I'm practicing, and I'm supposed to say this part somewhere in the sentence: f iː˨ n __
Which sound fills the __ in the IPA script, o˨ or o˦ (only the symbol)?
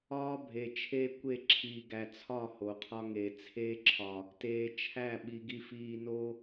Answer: o˦